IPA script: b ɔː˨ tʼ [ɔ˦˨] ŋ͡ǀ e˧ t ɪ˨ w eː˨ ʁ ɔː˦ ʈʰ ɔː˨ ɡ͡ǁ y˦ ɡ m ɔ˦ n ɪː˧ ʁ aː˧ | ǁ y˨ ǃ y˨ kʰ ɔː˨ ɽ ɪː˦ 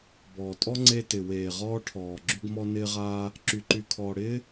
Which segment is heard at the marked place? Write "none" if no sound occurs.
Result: ɔ˦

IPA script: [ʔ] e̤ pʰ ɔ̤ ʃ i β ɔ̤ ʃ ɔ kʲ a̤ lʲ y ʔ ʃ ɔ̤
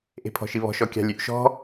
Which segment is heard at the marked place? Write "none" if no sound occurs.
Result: ʔ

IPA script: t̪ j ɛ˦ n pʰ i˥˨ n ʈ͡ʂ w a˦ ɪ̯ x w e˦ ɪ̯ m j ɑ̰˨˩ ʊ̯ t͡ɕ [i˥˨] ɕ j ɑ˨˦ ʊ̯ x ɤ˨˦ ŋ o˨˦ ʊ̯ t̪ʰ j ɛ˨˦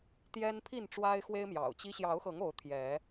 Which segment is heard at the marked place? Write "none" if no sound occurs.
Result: i˦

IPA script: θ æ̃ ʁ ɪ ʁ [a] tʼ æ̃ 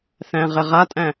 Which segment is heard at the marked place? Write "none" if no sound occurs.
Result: a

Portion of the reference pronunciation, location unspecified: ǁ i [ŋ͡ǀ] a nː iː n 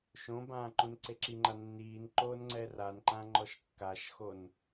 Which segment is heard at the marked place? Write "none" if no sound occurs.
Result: ŋ͡ǃ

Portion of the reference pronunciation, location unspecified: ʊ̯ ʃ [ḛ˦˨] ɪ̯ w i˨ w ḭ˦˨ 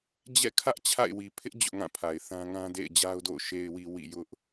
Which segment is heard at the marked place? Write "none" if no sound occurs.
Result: e˨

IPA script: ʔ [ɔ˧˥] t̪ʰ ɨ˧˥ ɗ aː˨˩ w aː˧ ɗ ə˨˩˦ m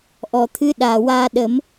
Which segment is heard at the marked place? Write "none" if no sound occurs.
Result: ɔ˨˩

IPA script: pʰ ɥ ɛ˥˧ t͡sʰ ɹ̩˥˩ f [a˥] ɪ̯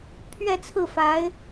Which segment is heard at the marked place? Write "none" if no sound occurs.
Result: a˧˥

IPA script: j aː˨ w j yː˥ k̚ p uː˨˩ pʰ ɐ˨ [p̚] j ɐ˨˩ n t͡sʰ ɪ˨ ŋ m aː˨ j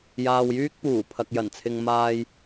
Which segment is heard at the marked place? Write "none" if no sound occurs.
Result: k̚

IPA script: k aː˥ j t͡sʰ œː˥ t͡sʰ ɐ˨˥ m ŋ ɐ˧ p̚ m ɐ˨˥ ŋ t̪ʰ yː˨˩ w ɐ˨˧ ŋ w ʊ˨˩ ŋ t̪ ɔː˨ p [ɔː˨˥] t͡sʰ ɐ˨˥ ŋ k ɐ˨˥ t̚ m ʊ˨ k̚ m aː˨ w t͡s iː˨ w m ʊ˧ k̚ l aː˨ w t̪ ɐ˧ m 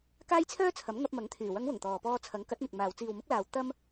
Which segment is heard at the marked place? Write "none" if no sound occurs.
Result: ɔː˧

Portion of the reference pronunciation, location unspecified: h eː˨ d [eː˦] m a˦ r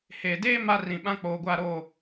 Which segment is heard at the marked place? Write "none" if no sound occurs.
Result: eː˦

